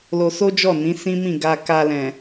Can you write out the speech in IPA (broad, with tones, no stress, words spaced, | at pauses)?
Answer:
lo˧so˦d͡ʒɔ˦˨nĩ˨˦ sĩ˦mĩ˦˨ ɡa˧ka˧lɛ̃˨